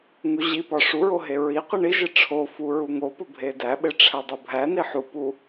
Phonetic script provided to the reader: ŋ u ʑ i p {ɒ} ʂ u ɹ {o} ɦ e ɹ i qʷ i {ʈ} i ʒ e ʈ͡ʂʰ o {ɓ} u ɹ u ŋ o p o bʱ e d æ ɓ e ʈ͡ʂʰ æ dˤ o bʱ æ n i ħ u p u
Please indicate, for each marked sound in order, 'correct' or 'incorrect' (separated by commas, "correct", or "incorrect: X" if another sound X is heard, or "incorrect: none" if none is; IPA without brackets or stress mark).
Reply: correct, correct, incorrect: ɳ, incorrect: f